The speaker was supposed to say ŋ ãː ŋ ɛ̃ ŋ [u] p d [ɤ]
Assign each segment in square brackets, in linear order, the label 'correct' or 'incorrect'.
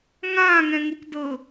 correct, correct

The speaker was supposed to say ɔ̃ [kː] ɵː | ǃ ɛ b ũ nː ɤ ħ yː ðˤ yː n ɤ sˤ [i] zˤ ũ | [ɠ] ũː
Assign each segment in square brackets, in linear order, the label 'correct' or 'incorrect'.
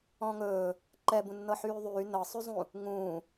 incorrect: ŋ, incorrect: y, incorrect: ŋ

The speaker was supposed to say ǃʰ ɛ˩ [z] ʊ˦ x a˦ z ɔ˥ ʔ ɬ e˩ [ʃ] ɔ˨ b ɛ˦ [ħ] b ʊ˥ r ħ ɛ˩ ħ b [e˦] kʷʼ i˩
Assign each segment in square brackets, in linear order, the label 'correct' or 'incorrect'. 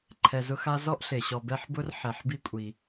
correct, incorrect: ɕ, correct, incorrect: i˦

